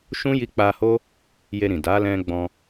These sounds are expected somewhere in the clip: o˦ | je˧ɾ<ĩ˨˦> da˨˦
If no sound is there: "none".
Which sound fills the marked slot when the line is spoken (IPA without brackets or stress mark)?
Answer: ĩ˨